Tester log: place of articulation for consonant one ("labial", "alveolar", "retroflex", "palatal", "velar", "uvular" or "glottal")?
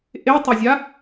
glottal